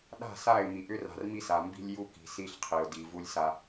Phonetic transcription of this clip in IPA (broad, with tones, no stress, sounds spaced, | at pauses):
ɗ a̤˦˨ s a˦˨ ɪ̯ m i˨ ʔ ʏ˦ r a̤˨ r m i˦ s a˨ m b i̤˦ lʲ j u˦ k i̤˨ s i˦ ɬ qʰ i˨ ʊ̯ d i˨ v u˦ lʲ s a˦